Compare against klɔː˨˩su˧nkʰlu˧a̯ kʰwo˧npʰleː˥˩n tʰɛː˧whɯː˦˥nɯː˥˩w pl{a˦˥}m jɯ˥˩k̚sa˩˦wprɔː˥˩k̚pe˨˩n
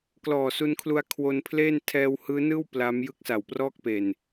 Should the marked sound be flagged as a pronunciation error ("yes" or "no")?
no